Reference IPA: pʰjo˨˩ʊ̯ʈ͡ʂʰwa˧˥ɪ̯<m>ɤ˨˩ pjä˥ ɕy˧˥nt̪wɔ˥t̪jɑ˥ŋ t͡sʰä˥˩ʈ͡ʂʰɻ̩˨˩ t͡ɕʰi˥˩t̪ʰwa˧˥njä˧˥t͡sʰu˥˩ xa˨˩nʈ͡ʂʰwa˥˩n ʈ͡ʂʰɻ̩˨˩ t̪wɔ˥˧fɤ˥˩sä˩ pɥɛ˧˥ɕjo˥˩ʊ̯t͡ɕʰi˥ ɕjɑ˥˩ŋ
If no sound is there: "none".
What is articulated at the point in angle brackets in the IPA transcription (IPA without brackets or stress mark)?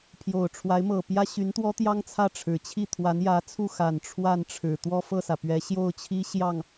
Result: m